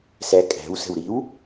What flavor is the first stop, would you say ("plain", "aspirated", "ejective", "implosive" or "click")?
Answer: ejective